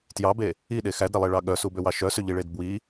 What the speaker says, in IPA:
t j ɑ b e | i ɗ e x æ d ɾ e lˠ e ɭ ɑ ɠ œ s u b ø w ɑ ʃ œ s ø ʎ i ɭ e d b w i

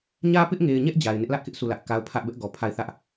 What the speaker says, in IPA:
ɲ ä˦ p ɪ˦ ʔ ŋ e˨ ɪ̯ ɲ ɛ˦ ʔ d͡ʑ a˨ ɪ̯ n ɪ˦ ʔ l ä˦ ʔ k ɪ˦ ʔ sʰ u˦˨ l ä˦ ʔ k a˦ ʊ̯ pʰ ä˦ ʔ b ɛ˦ ʔ ɡ ɔ˨ pʰ a˦˨ ɪ̯ θ ä˦ ʔ

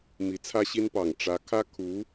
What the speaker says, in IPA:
m i˧˥ t͡sʰ ä˥ ɕ i˥ n p ɑ˨˩ ŋ ʈ͡ʂ ä˧˥ kʰ ä˥ kʰ u˧˥

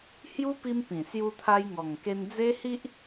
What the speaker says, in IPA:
h j u˦ p i˧ m p ĩ˨˩ s j u˧ t̪ʰ a˧ j ŋ ɔ˨˩ ŋ k e˧ n d͡z e˦ h i˦ ʔ

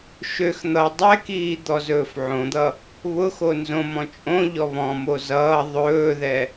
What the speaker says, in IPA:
ʃ ø x n̪ ʌ dˤ ɛ k iː d̪ ɔ z ɵː f ʕ õ d̪ ʌ | β ʊ x o n z õ m ɔ̃ t͡ʃʼ õ ʎ ɔ β ɔ̃ m o z ʌː ðˤ ɵː ð ɛ

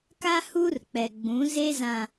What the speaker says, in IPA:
k a˦ h uː˦ r k͡p ɛ˨ ɡ͡b ũ˨˦ z e˦ z ã˨

